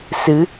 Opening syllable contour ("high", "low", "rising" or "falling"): rising